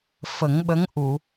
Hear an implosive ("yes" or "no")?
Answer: yes